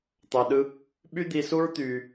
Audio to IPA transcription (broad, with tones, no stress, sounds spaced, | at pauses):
t̪ ɑ˧ ɗ ɯ˦ | ɓ y˦ d̪ i˧ s u˦ ɹ t̪ yː˧